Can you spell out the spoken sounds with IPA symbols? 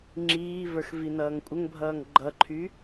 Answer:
ŋ͡ǁiːvə˞xvinʌːŋ kʷʼəŋbʱʌːŋ ɡ͡ǃʌǃʰy

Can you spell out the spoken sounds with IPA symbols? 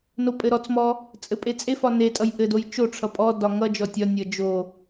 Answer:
nopʼɘɾɔt͡smɔ | t͡sʼɘpʼet͡sʼefɒ netʼʌj ʔɘdoj t͡ʃoʈ͡ʂʰʌ pʼɔdɒ ŋʌ d͡ʒɔtʲɒnʲʌ d͡ʒo

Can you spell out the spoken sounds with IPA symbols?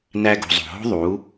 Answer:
næ˧ɡṳ˨zˤo̤˨ɦo̤˦ ðˤu˨˦

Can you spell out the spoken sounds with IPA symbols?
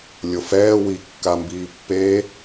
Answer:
lʲofɛː wi kːambiːpːe

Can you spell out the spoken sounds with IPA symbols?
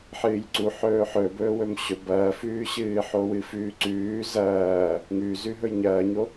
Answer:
ħɨːjǀu ħɵːħɵ bɵːwɵmɕɵ bɐːfʉːɕɨː ħowɨfʉːǀʉː zɐː | ŋʉzʉ ɦɵjɲɐːɲo

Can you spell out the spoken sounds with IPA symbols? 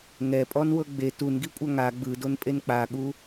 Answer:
ŋɛpʼɔnwɤ ɡ͡be tunɡikʷʼa ŋa ɡ͡bɯdonpʼen k͡paɠu

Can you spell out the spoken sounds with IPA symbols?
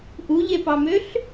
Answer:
ʔuʎepɑmøɬ

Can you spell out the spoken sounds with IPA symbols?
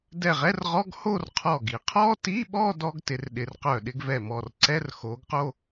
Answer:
dɛ˧˩ʁɛ˧˥˧rʁɔ˧˥˧ɡ ho˥˧rqʰɔ˧˩ɡi˧˩ qʰɔ˥ti˧˥˧ɓɔ˥˧ dɔ˥ɡtɪ˩˧rɗɪ˩˧rqœ˧˩ ɗɪ˥˧ɡvɛ˧˩mɔ˧˩r ǀɛ˧˥˧rxo˩˧ɡqo˥˧

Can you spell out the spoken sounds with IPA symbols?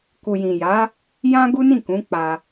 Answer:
ku˨jĩ˨ja˨˦ | jã˦ɡu˦nĩ˦˨kũ˨˦ k͡pa˧

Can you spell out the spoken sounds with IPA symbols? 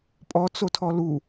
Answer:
pʼɔ t͡sotʰɔlu

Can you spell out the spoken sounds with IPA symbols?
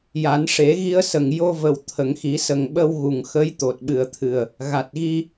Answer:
ja˨˩˦n ʂe˨˩˦ɣi˧ə̯sə˨˩ŋ jo˧və˨˩w t̪ʰə˨˩˨ŋxi˨˩˦ sə˨˩ŋɓə˧w ɣu˨˩ŋ xə˧˥j t̪o˨˩t̚ɓɨ˨˩ə̯t̪ʰɨ˨˩ə̯ | ɣa˨˩t̚ɣi˧

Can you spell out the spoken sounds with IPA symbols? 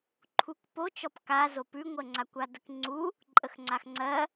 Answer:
ǃʰukpot͡ʃɔp ka zopʉŋʷɜŋ͡ǀa kʷadəkŋ͡ǀu | ǃʼəxŋ͡ǀaxŋ͡ǀɜ

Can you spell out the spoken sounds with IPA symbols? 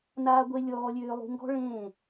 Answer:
naː˦ɡʷe˦ lʲɔː˧lʲøː˧lˠṳ˧ ŋɡɔ̤˦ ɭẽː˦˨

